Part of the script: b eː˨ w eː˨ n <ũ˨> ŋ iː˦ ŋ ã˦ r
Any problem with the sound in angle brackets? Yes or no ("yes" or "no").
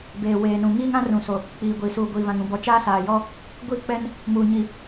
no